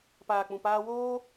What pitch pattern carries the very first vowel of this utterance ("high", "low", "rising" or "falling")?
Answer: low